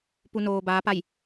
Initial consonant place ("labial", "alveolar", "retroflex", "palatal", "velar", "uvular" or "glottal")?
labial